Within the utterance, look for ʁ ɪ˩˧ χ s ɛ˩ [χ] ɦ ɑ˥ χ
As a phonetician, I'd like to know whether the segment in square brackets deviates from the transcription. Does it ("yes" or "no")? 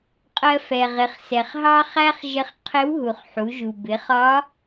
no